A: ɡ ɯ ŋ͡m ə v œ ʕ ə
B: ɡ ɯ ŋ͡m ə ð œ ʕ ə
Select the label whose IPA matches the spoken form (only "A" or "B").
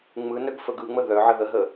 B